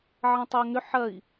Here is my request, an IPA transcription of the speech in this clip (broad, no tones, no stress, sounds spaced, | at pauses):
ʕ ɐ̃ tˤ ʊː ŋ ʏ ħ ɐ i̯